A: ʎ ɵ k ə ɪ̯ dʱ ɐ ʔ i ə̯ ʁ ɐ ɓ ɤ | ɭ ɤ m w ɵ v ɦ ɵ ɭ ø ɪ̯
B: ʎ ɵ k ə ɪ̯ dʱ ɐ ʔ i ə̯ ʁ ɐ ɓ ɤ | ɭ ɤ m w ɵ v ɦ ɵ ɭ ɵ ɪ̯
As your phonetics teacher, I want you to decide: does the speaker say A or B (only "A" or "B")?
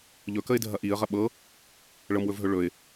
B